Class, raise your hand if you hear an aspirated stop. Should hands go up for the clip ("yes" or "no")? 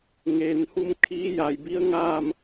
yes